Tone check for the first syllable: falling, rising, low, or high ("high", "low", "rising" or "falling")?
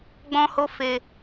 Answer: high